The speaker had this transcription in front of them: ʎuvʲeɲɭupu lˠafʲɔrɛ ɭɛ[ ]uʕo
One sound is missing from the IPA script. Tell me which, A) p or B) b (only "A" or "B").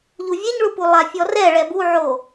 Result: B